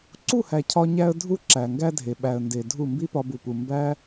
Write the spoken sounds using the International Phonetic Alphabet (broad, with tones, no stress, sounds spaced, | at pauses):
ǀ u˦˨ h æ˨ cʰ ɒ˧ ɲ æ˧ ə̯ dʱ u˦ ǁ æ˨ ŋ ɡ æ˦ dʱ e˨ ɓ æ˨ ə̯ n d e˨ dʱ u˦˨ m b i˦ p ɒ˧ b u˨ p u˨ m b æ˦